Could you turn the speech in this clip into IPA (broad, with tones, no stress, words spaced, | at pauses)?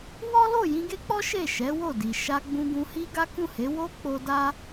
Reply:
wɔ˦lo˦˨ jĩ˧ɡe˦k͡pɔ˦ ʃe˦˨ʃɛ˨˦wo˦˨di˨ ʃa˧ ɡ͡bũ˧ɡũ˧hi˦ ɡa˦kũ˦˨he˨˦ wo˦ k͡po˧da˦